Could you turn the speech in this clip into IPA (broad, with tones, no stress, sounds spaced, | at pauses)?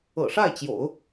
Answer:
ɤ̰˨˩ ʂ a˥˩ ɪ̯ t͡ɕ j o̰˨˩˦ ʊ̯